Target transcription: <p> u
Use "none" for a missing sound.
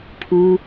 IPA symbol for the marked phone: pʰ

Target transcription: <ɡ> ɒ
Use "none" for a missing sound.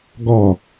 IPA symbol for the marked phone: ɡ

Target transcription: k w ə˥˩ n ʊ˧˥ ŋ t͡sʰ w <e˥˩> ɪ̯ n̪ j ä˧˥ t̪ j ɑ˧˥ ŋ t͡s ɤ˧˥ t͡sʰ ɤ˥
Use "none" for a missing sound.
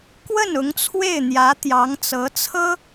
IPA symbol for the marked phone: e˥˩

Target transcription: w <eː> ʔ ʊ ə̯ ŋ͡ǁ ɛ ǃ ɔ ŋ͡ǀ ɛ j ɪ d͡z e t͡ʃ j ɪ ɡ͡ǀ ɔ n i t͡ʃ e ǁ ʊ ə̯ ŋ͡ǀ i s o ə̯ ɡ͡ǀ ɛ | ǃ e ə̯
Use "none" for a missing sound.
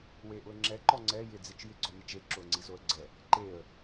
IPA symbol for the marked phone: e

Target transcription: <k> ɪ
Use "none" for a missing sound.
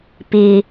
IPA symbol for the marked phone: p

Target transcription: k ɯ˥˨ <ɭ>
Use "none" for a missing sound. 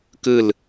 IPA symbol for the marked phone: l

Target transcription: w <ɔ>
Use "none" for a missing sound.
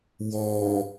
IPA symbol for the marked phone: ɔ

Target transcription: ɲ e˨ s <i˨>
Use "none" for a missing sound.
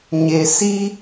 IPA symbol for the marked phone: i˦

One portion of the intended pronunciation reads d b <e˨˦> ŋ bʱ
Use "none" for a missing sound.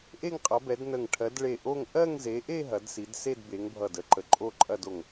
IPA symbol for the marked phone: e˨˦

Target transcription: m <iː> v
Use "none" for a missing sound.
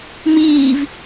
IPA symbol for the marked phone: iː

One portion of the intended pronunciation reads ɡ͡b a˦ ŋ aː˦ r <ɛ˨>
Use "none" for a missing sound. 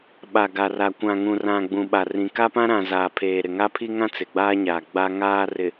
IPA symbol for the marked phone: ɪ˨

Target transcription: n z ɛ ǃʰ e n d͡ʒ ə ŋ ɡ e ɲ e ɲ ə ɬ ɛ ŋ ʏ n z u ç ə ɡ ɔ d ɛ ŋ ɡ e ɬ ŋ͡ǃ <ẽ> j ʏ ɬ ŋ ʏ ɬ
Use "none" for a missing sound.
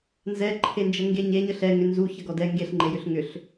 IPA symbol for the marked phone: e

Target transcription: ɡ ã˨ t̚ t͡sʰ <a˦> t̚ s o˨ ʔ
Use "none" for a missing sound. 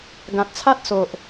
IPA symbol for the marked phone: a˦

